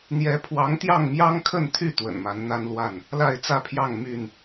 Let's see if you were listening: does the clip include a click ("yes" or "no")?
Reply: no